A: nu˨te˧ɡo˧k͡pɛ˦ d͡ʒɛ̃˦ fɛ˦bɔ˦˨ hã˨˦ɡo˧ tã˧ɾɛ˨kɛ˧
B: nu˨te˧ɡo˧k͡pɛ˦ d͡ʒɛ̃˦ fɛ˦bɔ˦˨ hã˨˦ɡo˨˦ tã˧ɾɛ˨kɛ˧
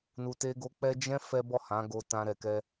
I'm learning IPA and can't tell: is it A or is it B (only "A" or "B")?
A